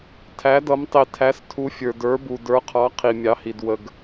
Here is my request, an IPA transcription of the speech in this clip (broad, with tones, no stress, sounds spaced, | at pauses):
tʰ æ˧˥ d ʌ˧˥ m tˤ i˧ tʰ æ˧˥ s tʰ u˧˥ fʲ ə˞˧ d ə˞˧˥ b u˧ d ə˞˧˥ qʰ ɑ˧˥ qʰ i˧ mʲ ɑ˧˥ h i˧ d w ə˧ ɡ